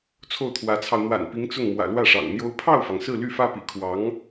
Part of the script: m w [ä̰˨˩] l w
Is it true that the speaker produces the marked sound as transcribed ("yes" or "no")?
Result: yes